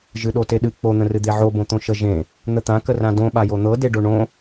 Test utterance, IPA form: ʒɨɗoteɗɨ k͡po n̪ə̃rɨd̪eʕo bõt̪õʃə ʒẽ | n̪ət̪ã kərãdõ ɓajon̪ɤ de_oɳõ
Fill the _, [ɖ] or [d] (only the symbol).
ɖ